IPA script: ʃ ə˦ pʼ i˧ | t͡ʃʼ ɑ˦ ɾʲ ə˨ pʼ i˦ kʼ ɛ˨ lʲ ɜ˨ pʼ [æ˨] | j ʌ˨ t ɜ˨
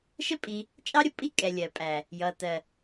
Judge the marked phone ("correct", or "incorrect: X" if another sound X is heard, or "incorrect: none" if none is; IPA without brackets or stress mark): correct